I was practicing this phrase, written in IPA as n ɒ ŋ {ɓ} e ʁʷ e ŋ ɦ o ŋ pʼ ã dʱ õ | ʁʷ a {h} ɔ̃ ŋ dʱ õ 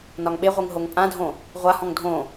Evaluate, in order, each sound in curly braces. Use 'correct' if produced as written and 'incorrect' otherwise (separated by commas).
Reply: correct, correct